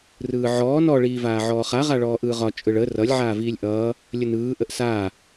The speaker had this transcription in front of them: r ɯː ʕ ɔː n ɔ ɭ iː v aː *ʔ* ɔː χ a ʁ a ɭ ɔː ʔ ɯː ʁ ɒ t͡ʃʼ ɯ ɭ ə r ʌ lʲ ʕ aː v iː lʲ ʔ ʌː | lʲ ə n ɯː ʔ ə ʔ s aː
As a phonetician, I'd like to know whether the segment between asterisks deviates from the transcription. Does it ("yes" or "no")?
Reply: yes